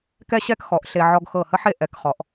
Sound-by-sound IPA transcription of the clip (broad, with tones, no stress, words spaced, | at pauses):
kɛ˥ɕɛ˥kxɔ˩˧ʔ ɬe˧ ʕɔ˧ɡxɤ˧˩hə˥ħe˥˧ ʔɛ˧k χɔ˩˧ʔ